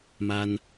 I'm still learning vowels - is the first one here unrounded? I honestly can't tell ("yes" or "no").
yes